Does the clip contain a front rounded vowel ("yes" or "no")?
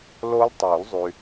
yes